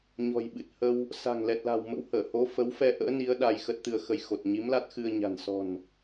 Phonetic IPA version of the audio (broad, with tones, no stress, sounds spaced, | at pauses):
ɲ ɔ̤˨˩ j ɓ ɨ˨˩ t̚ h ə˧ w | s a̤˨˩ ŋ l ɛ˨˩ t̚ l a̤˨˩ w m ə̰˧˥ w h əː˧˩ h o˨˦ f ə˨˦ w f ɛ˧ ʔ ə̰ː˧˥ n i˨˦ ə̯ ɗ a˧ j x ə˦˥ t̚ t̪ ɨ˧ ə̯ x ə˧ j x o˨˩ t̚ ɲ i˨˦ m l a˦˥ t̚ x ɨ˧ ə̯ ɲ a̤˨˩ n s ɔ̤˨˩ n